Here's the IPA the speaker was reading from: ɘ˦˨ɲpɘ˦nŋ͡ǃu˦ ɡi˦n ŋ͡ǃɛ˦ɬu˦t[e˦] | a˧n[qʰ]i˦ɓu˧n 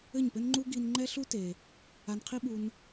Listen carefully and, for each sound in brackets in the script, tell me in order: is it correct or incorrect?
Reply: incorrect, correct

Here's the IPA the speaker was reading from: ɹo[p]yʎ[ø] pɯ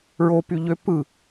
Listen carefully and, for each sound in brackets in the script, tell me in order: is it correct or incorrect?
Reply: correct, correct

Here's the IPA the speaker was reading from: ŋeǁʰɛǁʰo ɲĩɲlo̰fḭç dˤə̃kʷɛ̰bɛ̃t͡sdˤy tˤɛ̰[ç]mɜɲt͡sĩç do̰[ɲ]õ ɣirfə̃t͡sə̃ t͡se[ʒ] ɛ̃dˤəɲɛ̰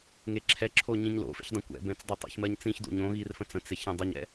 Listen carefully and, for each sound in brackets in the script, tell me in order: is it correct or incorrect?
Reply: correct, correct, incorrect

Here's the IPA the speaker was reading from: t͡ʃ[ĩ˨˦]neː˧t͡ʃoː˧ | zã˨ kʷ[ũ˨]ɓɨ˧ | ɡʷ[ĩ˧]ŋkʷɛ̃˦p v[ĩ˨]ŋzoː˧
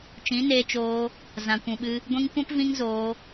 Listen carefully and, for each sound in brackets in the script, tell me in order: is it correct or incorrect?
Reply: correct, correct, correct, incorrect

